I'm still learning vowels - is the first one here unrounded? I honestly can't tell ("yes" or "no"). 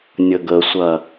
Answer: yes